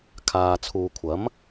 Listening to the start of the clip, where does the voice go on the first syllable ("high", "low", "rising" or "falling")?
low